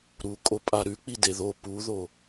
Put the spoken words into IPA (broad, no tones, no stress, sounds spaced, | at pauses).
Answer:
ɾ u kʼ o pʼ a ɾ ʉ k͡p i d e ð o p u ð o